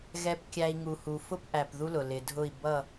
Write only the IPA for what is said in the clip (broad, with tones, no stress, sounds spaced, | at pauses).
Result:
ɣ ɛ˨ p kʲ æ˨ i̯ ŋ u˨ h u˨ f ʊ˦ p ʔ æ˨ p ð u˦ l ʊ˨ l ɪ˨ dʱ ʊ˦˨ i̯ b ʌ˦˨